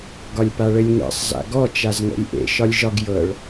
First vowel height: low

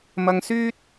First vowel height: low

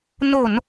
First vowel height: mid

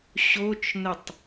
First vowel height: mid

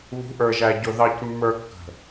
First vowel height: high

